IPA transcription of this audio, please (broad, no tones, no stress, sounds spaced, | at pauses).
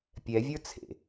pʲ ɛ vʲ ə˞ t͡sʰ ḛ